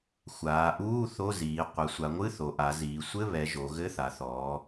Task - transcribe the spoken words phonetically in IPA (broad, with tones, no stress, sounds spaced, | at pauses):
xʷ aː˩˧ ʔ uː˧˥˧ θ o˧˥˧ z iː˩˧ qʷ a˩˧ sʷ a˩˧ ŋʷ ɨ˧˥˧ θ o˩˧ ʔ a˩˧ z iː˩˧ sʷ ɘ˧˥˧ β ɛ˩˧ ʒ o˩˧ ɣ ɘ˧˥˧ θ a˩˧ θ ɔː˩˧